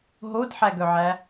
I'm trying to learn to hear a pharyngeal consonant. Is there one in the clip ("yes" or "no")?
yes